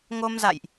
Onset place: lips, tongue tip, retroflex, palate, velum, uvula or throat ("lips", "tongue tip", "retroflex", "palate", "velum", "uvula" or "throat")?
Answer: velum